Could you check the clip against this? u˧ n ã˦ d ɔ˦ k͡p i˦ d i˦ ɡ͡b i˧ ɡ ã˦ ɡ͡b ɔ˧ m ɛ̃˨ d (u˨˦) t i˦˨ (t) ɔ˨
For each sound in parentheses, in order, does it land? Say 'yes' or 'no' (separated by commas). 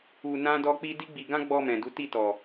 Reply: yes, yes